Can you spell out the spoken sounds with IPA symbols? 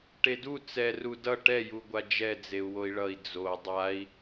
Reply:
ʈedu t͡sɛru dʌ ʈɛjuɡʷa d͡ʒɛd͡zeu̯ woi̯ɭʌi̯ d͡zo dˤai̯

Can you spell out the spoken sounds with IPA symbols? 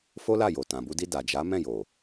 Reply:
fo˦la˦˨jo˨ tã˨bu˧di˧ da˨d͡ʒa˨˦mɛ̃˦˨jo˨

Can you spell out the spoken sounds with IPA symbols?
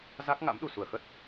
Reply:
za˦˥k̚ŋa̰˧˥m ɗu˨˩su˧˩ə̯xə˦˥t̚

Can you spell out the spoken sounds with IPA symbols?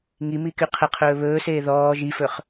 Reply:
ŋi mikyqʰəqʰɵː βɵːseː ðɔː ʒifɵχ

